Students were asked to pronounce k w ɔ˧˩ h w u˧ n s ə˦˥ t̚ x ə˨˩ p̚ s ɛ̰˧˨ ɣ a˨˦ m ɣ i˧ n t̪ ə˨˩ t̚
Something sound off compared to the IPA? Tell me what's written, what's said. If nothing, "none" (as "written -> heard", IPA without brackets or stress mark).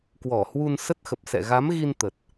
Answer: none